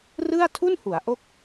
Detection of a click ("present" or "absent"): absent